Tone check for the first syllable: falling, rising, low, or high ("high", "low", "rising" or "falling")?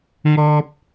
high